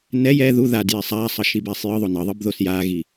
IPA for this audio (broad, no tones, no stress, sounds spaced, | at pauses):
n ɛ j ɛ ð u ð a d j e sˤ aː sˤ ʌ ʃ i b ɛː sˤ j ɯ ðˤ o n ʌ ðˤ ɯ b ð o s j aː ɣ i